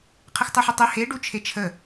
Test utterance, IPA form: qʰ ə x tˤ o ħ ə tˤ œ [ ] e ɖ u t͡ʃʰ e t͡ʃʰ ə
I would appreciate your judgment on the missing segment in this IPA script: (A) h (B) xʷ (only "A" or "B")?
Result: A